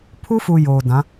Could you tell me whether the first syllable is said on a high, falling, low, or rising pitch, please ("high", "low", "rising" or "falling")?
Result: high